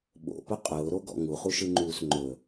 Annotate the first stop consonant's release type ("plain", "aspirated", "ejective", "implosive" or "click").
implosive